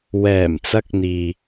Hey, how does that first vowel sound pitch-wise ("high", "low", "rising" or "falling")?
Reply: low